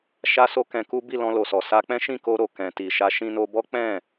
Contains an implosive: no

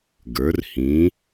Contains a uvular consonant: no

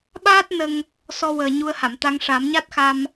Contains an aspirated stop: no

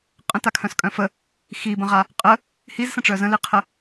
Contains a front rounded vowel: yes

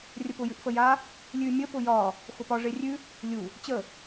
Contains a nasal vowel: no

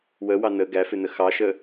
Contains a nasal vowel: no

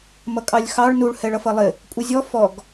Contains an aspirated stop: no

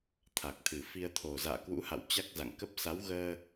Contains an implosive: no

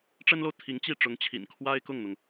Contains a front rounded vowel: no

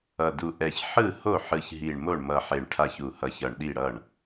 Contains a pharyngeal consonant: yes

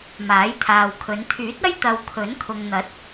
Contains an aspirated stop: yes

